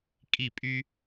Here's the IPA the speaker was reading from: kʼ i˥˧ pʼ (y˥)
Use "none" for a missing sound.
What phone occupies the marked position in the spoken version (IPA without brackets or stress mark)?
y˥